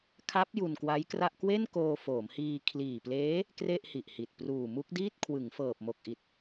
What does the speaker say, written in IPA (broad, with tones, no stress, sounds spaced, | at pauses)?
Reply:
kʰ a˦˥ p̚ j u˧ n k w a˦˥ j k r a˥˩ ʔ k w e˥˩ n k oː˧ f oː˩˦ m h iː˧ kʰ l iː˨˩ p l eː˦˥ | k r e˥˩ ʔ h i˨˩ ʔ h i˨˩ t̚ p r uː˨˩ m u˦˥ k̚ d iː˥˩ t̚ kʰ w ɯ˩˦ ŋ f ɤː˨˩ p̚ m o˨˩ k̚ ʔ i˨˩ t̚